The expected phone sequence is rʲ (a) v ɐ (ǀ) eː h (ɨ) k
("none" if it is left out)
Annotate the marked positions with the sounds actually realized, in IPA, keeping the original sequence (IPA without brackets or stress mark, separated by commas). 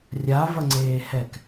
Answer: a, ŋ͡ǀ, ɛ